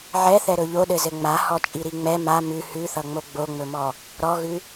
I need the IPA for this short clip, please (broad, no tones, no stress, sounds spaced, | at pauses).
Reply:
ʕ ɛ θ ɛ ɾ ɵ ʎ o ɗ ɘ z ɘ ŋ͡m a h ɔ t͡ʃʼ i ɾ i ŋ͡m ɛ m a m ʉ h ʉ θ ʌ ŋ͡m o ɡ͡b o ŋ͡m ɵ m ɔ | ɾ ɔ ɣ ʉ